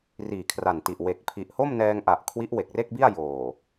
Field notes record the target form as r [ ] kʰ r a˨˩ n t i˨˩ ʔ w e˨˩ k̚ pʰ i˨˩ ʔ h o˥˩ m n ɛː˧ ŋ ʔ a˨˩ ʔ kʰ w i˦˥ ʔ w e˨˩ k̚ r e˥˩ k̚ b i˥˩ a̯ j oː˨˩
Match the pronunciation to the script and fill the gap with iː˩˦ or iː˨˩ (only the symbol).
iː˨˩